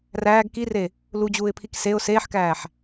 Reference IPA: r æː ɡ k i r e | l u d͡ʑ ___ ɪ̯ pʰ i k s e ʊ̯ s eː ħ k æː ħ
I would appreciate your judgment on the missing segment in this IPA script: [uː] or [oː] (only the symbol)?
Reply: uː